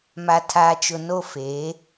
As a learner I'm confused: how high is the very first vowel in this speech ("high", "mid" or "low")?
low